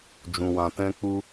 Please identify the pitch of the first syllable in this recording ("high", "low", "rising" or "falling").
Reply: low